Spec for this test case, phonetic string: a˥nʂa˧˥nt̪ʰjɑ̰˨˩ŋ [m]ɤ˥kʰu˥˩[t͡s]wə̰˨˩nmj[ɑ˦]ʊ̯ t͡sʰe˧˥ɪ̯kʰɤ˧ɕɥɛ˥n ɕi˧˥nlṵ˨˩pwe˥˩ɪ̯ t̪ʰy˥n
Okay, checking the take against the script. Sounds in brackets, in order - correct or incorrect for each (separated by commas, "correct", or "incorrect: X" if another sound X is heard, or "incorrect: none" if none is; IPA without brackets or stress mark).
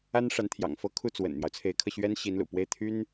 incorrect: f, correct, correct